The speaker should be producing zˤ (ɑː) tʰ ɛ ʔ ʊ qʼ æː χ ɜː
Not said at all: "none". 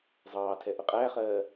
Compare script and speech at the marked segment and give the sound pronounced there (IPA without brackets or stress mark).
ɑː